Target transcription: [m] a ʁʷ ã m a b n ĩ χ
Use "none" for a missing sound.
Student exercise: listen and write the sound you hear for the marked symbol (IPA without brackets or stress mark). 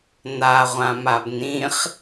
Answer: n